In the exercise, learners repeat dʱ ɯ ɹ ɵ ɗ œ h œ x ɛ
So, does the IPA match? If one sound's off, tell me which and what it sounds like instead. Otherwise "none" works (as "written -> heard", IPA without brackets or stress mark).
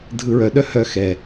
ɵ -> œ